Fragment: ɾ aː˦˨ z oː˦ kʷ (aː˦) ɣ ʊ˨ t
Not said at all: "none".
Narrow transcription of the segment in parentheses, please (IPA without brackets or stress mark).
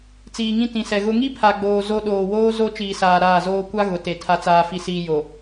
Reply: a˦